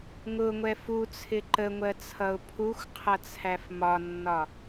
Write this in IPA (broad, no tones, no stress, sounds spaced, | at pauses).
ŋ ʊ ŋʷ ɛ f u t͡sʰ ɪ ǃ ə ŋʷ ɜ t͡sʰ ʌ ʊ̯ pʰ u xʷ qʰ ʌ t͡sʰ æ f m ɒ nː ɒ